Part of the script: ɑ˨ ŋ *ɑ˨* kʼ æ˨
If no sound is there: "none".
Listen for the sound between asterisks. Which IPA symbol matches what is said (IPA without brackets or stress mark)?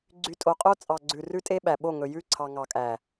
ɑ˨